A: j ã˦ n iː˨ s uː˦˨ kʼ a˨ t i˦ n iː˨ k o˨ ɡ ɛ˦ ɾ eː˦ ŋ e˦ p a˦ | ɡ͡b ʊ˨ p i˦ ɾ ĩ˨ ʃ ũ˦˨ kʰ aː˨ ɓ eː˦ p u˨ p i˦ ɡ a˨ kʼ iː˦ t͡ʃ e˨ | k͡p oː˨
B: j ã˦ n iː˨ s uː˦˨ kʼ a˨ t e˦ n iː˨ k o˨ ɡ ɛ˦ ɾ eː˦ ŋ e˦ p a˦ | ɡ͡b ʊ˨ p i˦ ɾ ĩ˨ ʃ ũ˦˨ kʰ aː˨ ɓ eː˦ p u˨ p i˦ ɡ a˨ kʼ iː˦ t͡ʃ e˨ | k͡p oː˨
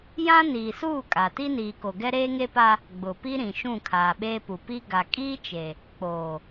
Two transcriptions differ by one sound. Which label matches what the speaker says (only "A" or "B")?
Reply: A